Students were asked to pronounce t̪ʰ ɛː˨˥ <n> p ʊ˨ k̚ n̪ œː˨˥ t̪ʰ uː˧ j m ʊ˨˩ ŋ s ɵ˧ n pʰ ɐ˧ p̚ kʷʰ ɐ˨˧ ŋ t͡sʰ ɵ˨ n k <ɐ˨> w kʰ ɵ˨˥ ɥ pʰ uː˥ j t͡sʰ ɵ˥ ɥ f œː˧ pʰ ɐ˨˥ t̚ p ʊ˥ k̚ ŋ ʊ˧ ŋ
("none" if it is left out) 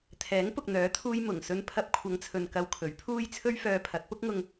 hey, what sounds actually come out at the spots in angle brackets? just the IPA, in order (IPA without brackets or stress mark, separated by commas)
ŋ, ɐ˧